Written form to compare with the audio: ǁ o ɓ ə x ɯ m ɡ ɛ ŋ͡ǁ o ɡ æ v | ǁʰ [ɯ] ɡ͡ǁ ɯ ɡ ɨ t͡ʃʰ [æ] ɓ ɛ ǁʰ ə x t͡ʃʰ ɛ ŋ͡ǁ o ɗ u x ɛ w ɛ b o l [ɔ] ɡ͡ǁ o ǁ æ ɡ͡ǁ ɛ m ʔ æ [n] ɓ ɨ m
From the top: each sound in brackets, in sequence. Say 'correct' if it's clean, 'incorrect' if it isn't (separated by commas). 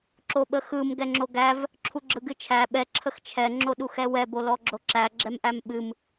incorrect, correct, correct, incorrect